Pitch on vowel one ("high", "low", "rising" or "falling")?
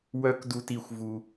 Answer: high